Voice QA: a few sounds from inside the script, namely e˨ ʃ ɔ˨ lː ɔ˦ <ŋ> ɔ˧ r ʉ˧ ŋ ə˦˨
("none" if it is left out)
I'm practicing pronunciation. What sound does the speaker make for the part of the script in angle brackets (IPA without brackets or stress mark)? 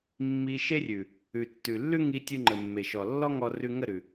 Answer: ŋ